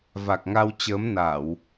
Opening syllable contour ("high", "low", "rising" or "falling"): low